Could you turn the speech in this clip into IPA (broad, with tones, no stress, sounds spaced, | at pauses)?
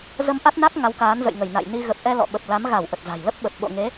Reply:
z ə˧ m ʔ a˦˥ t̚ n a˦˥ k̚ ŋ a˨˦ w k aː˨˦ n z ə̰˧˨ j ŋ ə˧˩ j n a̰˧˨ j n i˧ ɣ ə˨˩ p̚ ʔ ɛ˧ l ɔ̰˧˨ ɓ ə˨˩ p̚ l a˨˦ m ɣ a˧˩ w ʔ ə˨˩ t̚ z a̤˨˩ j l ə˦˥ p̚ ɓ ə˨˩ p̚ ɓ o̰˧˨ ŋ e˨˦